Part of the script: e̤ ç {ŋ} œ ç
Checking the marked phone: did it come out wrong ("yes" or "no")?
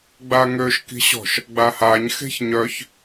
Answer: yes